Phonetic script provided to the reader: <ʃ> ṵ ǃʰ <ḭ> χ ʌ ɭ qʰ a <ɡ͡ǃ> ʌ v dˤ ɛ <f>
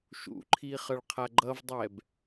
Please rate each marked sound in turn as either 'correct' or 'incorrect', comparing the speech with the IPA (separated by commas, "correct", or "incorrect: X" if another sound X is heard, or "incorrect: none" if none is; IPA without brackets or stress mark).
correct, incorrect: i, correct, incorrect: b